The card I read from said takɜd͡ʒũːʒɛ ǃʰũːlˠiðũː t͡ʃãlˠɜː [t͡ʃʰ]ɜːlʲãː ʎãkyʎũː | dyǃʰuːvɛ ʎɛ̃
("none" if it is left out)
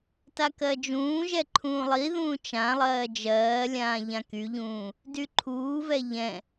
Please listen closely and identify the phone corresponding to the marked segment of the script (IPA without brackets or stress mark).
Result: d͡ʒ